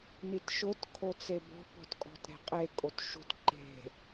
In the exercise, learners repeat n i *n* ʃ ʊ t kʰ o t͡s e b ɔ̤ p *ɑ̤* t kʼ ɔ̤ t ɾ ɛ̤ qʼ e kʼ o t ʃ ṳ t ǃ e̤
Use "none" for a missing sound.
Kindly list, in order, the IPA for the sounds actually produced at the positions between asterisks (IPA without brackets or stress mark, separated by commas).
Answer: t, ɔ̤